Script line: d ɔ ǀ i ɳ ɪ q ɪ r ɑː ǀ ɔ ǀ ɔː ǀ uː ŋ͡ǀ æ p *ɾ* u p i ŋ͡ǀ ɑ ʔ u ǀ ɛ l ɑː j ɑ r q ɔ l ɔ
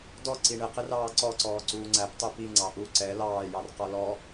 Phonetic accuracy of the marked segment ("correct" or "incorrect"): incorrect